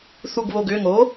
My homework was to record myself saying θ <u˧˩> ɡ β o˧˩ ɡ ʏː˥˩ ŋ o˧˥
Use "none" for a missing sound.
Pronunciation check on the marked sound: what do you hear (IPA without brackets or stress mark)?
u˧˩